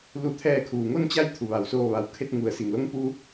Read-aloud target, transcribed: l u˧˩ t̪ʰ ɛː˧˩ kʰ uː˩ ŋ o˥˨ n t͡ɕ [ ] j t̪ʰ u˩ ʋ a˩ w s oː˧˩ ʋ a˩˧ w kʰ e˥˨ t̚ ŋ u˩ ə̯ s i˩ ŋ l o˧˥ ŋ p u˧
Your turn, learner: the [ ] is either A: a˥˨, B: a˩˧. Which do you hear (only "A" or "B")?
A